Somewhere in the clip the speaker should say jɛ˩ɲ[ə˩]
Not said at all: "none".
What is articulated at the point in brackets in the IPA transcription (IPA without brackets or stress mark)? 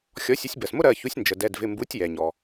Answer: ɔ˩